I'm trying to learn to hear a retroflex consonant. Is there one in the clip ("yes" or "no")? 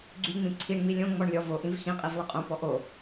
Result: yes